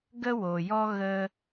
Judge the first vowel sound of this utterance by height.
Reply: mid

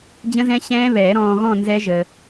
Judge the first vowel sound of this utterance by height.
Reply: mid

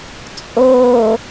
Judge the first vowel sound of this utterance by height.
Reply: mid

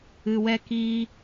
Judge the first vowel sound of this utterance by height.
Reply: high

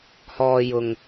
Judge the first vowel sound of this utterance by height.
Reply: mid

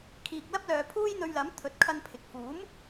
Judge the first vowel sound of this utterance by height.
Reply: high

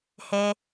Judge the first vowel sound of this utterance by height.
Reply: mid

